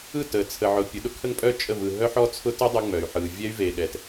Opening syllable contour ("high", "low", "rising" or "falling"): falling